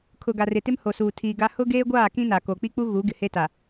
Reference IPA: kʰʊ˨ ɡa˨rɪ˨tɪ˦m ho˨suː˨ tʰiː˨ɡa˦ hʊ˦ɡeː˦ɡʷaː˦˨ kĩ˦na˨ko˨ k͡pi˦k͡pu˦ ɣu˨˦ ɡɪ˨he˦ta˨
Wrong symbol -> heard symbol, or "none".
none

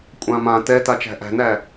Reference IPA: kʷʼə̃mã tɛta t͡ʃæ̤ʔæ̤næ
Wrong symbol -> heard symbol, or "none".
ə̃ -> ã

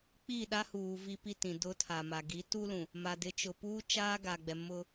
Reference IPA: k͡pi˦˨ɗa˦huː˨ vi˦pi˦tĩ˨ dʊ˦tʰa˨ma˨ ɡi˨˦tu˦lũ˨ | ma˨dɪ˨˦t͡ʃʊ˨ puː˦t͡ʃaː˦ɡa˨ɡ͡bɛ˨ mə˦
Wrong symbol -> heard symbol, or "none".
ə˦ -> ʊ˦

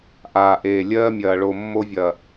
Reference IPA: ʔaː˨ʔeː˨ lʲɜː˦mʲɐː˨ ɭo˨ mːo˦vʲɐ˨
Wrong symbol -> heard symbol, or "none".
none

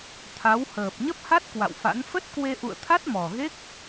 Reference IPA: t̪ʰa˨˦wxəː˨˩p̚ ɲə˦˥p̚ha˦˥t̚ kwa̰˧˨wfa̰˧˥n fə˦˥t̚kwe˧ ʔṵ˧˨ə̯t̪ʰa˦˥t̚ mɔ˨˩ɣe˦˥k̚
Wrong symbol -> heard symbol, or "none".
x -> h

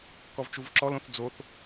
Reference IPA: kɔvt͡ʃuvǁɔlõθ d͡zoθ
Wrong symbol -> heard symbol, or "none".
none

